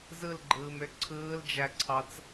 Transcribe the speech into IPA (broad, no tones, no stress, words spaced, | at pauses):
zɯlɡ͡ǃɯːmø ǀʰɯːld͡ʒæǀʰɑt͡s